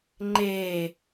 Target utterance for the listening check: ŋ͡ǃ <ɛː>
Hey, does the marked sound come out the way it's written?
no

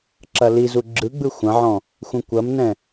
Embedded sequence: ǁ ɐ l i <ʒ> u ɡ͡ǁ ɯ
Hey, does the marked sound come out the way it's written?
no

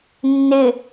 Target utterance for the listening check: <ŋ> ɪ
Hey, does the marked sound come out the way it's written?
no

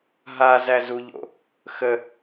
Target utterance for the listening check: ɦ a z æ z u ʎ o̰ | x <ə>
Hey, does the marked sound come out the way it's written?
yes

